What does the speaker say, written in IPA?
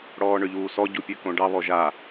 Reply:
ɽɔːɳøʎuːsɔ ɟupʲøkõɖɑ βɔʒa

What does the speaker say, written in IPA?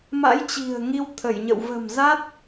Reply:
ma̰˧˥jt͡ɕi̤˨˩ə̯ ŋi˧wt̪ʰə˧˩jɲə̰˧˨w və̤˨˩m za˦˥t̚

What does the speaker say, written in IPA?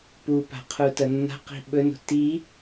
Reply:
pupa̤ qʰutɐnːa̤ qi̤ɓɵno̤ ti

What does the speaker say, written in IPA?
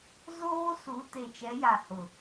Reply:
zoː˦su˨˦ te˨t͡ʃɛ˨˦ja˨hʊ˨

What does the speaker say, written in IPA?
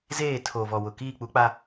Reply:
zeː˦˨ tʰo˨vɔ˨wʊ˨ kiː˦˨k͡pu˦k͡pa˦

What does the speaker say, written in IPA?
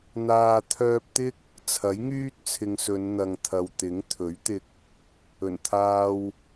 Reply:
n̪aː˧ t̪ʰœː˧p̚t̪ɪ˥k̚ | t͡sʰɐ˨˥jŋyː˥t̚t͡sʰɪ˨ŋsɵ˨˧n n̪ɐ˨ŋt̪ʰɐ˨wt̪ɪ˨˥ŋ t̪ʰɵ˨˥ɥt̪ɪ˧k̚ | ɵ˨˩nt̪ʰaː˧w

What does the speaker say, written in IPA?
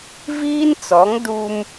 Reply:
viː˦nt͡sɔ˨˦ŋ du˦m

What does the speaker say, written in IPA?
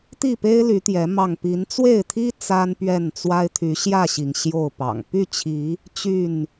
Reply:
t̪i˥˨pe˦ɪ̯ ly˨˦t̪jɛ˨˦ mɑ˥˨ŋ pi˨˦nt͡swe˥˨ɪ̯t̪ʰi˦ t͡sa˦npɥɛ˥˨nt͡swa˦ɪ̯ t̪ʰy˨˦ɕjä˥˨ɕi˩ŋ ɕjo˥˨ʊ̯pɑ̰˨˩ŋ py˥˨t͡ɕʰi˨˦ | t͡ɕy˥˨n

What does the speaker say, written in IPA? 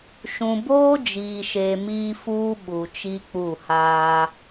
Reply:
ʃũ˨boː˦d͡ʒiː˨ʃe˨ miː˦fuː˦ ɓu˨t͡ʃi˦k͡pu˦˨haː˦

